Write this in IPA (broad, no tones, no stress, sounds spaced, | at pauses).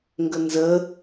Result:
ŋ ɡ ə n z ə